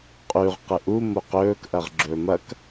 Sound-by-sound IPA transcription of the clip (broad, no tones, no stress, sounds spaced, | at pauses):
qʼ ʉ ʁ q ɨ ʔ u m o q ɵː k ʔ ɐ ʁ ɡ͡ǁ ɵː m ɐ k